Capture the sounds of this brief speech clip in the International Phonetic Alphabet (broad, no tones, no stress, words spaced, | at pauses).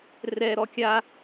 rɛɾɔ kʲa